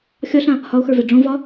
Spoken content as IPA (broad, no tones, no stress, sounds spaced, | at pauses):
xʲ ɒ ɬ ã | h ɒ o̯ x ə˞ v ɛ ɖ͡ʐ õ v ɒ